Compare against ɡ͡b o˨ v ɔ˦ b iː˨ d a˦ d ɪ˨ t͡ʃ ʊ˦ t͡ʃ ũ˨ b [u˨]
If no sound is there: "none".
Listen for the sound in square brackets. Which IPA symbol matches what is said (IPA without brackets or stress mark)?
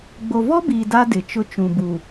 u˨